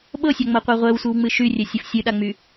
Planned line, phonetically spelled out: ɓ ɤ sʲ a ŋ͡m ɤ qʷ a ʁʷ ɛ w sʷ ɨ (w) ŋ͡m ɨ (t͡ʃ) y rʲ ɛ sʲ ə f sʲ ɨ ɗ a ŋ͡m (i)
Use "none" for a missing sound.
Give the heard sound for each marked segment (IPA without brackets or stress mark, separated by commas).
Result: w, ʃ, y